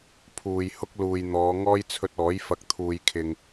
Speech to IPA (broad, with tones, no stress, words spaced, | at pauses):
pʰuː˨j hʊ˥k̚luː˨jn̪ɔː˨˧ ŋɔː˥jt͡sʰɵ˧t̚ɔː˨˥j fɐ˨˥k̚t̪ʰuː˨jkʰɪ˨ŋ